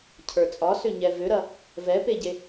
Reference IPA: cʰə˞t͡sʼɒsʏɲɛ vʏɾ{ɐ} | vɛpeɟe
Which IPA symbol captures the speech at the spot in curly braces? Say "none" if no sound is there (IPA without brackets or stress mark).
ɐ